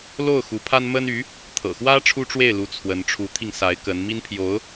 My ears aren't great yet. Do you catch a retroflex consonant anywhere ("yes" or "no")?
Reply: yes